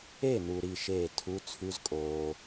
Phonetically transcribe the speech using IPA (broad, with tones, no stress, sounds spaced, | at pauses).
e˥˩ n u˨ ɾ i˥˩ ʃ eː˥˩ tʰ u˧˥˧ t͡sʰ ʉ˧˥˧ z kʼ oː˨